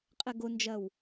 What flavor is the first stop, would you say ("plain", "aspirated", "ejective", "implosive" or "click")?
ejective